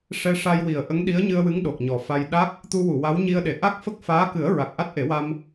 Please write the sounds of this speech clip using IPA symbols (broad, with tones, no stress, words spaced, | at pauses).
ʂɛ˧ ʂa˧jwi˨˩ə̯ ʔə˧˥ŋɗi˧˥ə̯ɲɨ˧ə̯wɨ˧˥ŋ ɗo˨˩k̚ɲɔ˨˩fa˧j ɗa˦˥k̚ | t̪u˧wu˨˩˨ wa˧˥w ɲi˧ə̯ɗe˨˩˨ ʔa˦˥k̚fə˦˥k̚faː˧˥kɨ˨˩˦ə̯ ɹa˨˩k̚ʔa˦˥t̚ʔe˨˩˦wa˧m